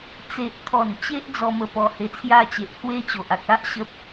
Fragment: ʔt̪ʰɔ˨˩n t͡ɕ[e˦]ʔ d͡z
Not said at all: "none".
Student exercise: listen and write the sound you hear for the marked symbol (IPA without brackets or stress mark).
e˦